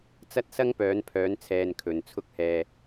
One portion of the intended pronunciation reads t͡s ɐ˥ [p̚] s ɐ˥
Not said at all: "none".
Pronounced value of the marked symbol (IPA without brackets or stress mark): t̚